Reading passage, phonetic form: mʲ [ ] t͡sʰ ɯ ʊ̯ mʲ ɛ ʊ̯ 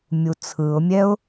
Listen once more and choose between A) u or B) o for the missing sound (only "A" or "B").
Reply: A